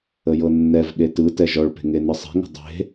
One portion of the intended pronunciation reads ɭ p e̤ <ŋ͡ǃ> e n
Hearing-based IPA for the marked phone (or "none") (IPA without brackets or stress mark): ŋ